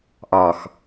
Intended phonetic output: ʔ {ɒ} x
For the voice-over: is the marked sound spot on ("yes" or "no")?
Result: yes